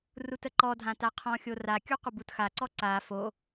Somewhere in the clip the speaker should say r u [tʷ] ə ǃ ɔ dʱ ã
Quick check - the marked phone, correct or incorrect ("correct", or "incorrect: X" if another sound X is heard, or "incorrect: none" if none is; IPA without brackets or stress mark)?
incorrect: t